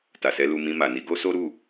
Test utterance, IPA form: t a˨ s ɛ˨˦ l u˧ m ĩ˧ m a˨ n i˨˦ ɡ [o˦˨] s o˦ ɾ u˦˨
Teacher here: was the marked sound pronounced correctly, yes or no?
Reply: no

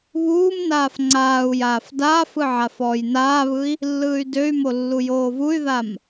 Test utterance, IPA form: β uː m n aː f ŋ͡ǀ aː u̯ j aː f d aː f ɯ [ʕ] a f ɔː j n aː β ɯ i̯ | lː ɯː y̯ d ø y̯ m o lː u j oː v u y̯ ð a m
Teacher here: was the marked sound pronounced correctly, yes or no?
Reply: yes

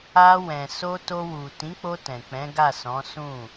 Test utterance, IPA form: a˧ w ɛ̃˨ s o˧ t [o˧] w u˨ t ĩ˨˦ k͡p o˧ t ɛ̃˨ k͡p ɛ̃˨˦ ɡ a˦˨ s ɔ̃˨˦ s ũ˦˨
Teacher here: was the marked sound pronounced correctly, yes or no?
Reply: yes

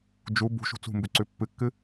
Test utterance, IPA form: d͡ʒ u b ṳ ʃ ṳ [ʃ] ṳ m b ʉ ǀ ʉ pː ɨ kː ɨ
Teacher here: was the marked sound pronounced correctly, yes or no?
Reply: no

